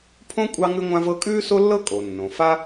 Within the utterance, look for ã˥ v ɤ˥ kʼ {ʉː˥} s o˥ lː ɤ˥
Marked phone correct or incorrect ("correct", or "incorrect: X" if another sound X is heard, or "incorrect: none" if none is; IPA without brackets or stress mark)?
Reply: correct